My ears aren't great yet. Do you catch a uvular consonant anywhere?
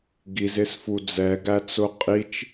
yes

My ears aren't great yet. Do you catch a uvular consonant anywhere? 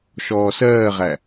yes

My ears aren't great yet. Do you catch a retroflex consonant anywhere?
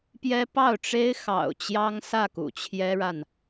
yes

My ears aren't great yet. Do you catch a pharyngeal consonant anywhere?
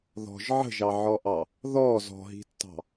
yes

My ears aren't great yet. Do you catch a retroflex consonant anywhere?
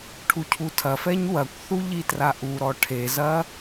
yes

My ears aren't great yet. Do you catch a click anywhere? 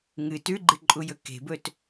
yes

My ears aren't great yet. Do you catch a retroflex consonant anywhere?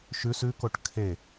yes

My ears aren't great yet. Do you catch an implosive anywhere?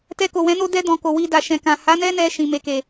no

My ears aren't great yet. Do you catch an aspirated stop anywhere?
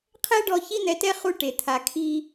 yes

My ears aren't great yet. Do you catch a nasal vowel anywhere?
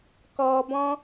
yes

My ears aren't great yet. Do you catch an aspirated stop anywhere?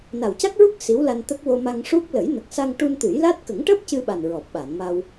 no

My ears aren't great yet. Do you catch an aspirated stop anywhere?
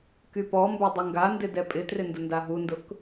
no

